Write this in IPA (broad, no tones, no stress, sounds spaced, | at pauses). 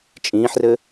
t͡ʃʼ ĩː ħ r ɘ